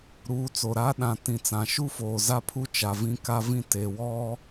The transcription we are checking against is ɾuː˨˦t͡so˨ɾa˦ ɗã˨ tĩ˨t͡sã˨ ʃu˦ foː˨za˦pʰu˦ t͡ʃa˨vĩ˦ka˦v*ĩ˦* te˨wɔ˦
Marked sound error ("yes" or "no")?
no